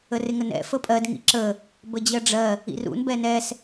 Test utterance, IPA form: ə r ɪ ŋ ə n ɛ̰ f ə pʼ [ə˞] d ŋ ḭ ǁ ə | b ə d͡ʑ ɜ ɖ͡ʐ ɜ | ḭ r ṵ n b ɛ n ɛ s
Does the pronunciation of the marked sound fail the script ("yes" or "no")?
yes